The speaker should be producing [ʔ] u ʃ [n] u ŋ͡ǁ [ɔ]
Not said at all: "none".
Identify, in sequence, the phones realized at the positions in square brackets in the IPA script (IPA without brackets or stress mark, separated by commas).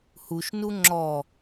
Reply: h, n, ɔ